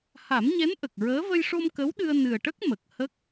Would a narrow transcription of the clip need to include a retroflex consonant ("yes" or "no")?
yes